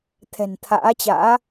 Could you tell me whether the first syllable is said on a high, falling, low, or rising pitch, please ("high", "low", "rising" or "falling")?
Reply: low